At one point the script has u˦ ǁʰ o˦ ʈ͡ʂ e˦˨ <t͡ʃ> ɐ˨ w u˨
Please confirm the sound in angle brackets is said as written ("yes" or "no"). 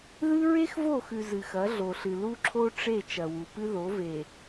yes